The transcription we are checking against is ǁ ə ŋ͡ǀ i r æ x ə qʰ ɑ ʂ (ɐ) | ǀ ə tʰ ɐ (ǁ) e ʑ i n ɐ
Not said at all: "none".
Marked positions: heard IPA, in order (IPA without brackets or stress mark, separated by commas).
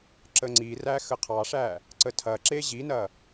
æ, ǁ